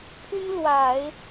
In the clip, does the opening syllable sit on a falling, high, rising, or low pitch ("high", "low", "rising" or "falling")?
high